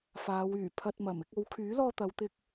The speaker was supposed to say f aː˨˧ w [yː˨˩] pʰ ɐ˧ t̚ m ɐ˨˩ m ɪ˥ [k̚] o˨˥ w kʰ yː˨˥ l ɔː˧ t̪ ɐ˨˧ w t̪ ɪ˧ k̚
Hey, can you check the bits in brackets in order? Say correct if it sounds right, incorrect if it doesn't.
correct, correct

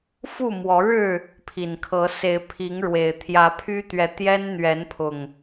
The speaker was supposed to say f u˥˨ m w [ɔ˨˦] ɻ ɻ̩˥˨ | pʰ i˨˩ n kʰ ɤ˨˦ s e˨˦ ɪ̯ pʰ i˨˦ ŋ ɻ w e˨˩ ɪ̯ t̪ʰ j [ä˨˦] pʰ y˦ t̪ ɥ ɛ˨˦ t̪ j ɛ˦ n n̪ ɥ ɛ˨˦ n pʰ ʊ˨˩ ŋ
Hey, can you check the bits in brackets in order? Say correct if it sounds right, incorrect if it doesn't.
correct, correct

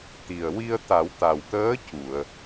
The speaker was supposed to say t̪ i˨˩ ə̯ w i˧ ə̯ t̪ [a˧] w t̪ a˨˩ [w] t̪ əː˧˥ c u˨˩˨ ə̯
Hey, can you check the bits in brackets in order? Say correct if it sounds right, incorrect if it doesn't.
incorrect: a˨˩˦, correct

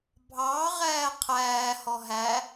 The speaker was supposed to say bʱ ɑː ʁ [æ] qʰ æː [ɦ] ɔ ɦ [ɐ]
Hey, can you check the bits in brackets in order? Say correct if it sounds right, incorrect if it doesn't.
incorrect: æː, incorrect: h, incorrect: æ

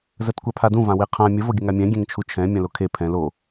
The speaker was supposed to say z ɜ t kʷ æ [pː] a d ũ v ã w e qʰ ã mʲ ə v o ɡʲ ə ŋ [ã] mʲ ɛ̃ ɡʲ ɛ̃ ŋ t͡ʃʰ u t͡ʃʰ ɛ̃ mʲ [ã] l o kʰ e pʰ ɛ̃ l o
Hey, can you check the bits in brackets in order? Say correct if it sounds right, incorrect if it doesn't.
incorrect: pʰ, incorrect: a, correct

